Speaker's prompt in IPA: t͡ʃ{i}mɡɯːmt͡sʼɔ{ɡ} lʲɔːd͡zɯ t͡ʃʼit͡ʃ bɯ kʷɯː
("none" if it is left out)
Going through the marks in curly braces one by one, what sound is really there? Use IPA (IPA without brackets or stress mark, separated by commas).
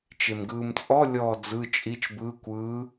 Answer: e, none